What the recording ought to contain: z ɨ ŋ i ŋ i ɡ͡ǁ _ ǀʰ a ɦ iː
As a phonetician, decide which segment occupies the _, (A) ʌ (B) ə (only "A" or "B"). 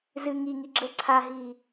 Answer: B